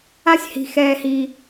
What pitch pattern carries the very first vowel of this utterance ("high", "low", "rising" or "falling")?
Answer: high